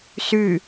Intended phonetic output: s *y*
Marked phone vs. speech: correct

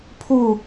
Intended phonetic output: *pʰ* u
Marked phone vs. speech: correct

